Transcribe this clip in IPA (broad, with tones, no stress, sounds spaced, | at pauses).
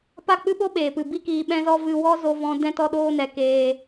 p a˦˨ k͡p ɨ˦ ɓ o˦ ɓ eː˨ p ɨ˨ b i˦ k iː˧ ɓ ɛ̃˦ z ɔ˦ v ɨ˧ w ɔ˦ z o˧ v ɔ̃˧ d ɛ̃˧ t ɔ˧ ɗ oː˧ n ɛ˨ k eː˧